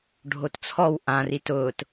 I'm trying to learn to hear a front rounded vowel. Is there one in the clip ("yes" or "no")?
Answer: no